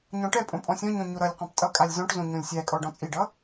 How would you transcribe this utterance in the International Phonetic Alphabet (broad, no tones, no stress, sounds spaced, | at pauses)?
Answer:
ɲ ɔ̃ ʈ ɛ pʼ õ pʼ ɔ̃ sʲ ɔ̃ ɲ ɔ̃ ɲ o ɾ ʌ lʲ q ɔ̃ p tʼ ʌ kʼ a lʲ z ɔ̃ ʈ z õ ɲ õ lʲ sʲ æ kʼ ɔ ɖ ɔ̃ t͡sʼ i ɖ ʌ